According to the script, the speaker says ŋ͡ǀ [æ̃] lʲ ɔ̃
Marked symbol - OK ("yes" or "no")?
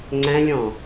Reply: yes